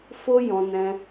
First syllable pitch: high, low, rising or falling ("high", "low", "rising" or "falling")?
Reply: high